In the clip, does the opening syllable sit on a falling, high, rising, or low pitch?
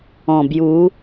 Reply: low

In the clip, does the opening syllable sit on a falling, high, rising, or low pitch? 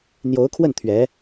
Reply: rising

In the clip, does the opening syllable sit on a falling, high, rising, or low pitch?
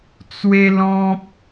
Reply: high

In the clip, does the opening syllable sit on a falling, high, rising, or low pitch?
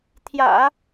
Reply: low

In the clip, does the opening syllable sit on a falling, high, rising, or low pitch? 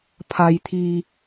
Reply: low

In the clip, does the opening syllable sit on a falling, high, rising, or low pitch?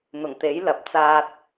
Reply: low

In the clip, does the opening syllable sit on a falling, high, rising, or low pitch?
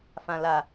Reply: low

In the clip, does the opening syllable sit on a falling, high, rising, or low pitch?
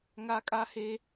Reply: high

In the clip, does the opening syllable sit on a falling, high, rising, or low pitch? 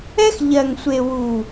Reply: high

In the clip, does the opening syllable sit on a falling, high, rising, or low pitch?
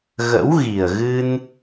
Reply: rising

